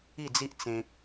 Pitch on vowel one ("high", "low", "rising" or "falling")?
falling